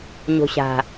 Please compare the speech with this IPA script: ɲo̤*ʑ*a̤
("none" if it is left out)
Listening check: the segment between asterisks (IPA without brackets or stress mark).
ɕ